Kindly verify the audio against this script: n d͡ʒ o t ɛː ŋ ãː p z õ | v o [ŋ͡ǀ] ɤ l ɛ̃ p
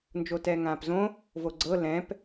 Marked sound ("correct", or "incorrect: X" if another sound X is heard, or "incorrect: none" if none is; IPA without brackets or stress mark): incorrect: ɡ͡ǀ